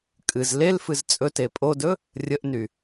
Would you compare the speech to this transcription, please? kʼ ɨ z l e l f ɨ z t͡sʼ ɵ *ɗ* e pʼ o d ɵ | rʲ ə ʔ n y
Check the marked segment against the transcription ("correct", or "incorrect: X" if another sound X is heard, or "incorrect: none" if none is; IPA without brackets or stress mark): incorrect: t